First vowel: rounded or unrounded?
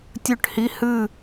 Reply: rounded